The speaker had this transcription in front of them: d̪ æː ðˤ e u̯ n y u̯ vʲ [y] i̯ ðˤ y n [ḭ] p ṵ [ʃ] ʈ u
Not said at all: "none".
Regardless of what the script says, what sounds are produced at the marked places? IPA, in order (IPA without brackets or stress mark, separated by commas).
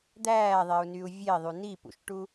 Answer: e, i, ʃ